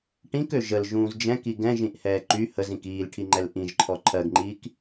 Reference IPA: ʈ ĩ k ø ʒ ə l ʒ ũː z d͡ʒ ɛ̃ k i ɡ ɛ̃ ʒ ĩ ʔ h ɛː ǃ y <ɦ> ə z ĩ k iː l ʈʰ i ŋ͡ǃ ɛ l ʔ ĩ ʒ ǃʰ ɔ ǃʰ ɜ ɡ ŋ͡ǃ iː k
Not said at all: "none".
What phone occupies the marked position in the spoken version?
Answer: h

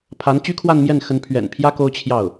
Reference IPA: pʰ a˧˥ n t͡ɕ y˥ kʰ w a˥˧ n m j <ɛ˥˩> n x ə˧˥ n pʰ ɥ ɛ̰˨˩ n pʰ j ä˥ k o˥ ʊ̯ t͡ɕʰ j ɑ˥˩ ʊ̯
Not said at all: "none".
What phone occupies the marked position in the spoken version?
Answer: ɛ˥˩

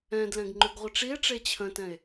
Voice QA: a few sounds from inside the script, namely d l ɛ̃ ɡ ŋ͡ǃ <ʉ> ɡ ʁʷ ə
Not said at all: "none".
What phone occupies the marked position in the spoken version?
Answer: ʉ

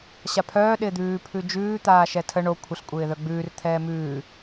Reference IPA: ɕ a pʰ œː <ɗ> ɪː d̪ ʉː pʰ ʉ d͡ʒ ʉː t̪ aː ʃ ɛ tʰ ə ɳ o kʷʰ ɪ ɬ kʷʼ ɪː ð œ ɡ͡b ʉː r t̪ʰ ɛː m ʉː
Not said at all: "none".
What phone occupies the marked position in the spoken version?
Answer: ɗ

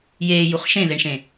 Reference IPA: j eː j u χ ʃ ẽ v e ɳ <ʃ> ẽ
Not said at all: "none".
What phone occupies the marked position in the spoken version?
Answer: ʃ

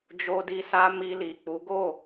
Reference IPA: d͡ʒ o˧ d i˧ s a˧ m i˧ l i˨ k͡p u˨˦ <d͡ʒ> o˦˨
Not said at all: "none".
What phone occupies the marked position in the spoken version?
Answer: ɡ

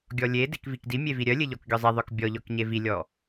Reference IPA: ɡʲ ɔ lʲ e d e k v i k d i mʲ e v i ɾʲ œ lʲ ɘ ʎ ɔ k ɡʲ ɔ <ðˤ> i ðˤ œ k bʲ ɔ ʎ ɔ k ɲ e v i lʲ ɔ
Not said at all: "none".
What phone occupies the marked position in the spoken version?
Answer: zˤ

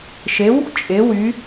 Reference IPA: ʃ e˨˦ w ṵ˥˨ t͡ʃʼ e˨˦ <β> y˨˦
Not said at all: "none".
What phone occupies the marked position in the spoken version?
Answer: w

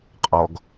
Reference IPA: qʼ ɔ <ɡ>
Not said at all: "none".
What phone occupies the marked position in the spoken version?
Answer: ɡ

